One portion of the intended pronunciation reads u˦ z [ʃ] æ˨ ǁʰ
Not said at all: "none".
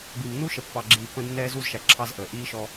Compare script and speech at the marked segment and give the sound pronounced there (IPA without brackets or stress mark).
ʃ